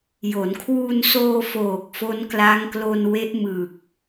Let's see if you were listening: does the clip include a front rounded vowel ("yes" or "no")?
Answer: no